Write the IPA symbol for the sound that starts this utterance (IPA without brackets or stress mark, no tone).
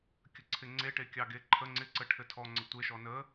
kʲ